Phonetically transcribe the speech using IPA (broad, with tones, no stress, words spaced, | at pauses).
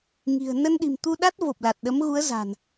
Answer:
ŋi̤˨˩ə̯ nə˧nɗi̤˨˩mt̪u˧ɗa˦˥t̚ vo˨˩p̚la˨˩t̚ ɗə˨˦mɣu˨˦ə̯ za̤˨˩n